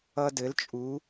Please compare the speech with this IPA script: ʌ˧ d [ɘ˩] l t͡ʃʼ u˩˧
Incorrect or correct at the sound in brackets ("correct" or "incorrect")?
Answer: incorrect